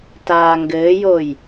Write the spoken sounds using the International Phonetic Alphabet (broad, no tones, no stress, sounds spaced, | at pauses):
t aː ŋ ɡ ɘː j o j